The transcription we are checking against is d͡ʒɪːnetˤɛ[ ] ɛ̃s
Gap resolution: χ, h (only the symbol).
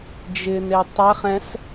χ